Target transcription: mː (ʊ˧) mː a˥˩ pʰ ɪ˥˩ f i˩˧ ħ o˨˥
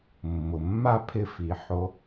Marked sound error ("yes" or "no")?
yes